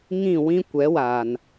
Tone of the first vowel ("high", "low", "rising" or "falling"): falling